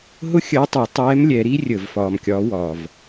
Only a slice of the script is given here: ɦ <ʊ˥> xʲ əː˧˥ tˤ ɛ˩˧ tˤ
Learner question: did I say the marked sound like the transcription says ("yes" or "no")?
yes